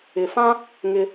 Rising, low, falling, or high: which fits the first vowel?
low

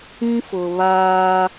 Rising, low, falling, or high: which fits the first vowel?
high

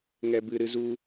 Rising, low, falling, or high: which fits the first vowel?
high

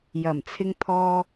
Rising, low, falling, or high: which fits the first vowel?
low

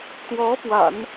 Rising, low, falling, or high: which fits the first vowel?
rising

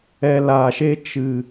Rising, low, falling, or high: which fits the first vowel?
low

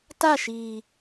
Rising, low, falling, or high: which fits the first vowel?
falling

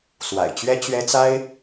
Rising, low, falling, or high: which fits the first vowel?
low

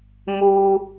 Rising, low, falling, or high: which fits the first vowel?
high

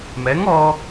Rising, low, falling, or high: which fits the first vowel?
rising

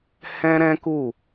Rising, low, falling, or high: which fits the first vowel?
high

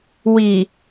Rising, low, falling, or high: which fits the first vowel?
low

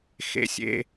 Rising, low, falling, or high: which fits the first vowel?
high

